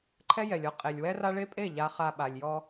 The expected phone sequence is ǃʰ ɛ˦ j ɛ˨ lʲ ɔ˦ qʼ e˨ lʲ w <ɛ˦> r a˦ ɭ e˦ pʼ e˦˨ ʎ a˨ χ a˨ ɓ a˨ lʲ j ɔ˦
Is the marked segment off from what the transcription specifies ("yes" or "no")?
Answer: no